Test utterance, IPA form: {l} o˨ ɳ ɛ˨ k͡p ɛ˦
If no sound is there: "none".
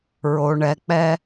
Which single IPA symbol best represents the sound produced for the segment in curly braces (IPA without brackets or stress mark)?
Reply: ɹ